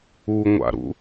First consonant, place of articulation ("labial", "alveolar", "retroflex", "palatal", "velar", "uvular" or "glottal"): velar